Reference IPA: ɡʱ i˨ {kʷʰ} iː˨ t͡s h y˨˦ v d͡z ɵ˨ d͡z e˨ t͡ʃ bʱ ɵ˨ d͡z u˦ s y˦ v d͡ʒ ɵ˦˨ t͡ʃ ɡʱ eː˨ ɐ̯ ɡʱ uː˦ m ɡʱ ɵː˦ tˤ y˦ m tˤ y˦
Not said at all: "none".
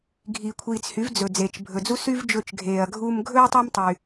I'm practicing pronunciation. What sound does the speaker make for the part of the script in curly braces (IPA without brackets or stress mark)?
kʷʰ